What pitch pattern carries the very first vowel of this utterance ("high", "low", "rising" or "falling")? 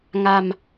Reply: low